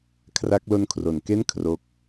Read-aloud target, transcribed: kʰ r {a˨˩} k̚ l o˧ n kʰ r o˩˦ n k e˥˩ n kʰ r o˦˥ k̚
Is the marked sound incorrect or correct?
incorrect